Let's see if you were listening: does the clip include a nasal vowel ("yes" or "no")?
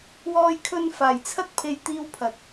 no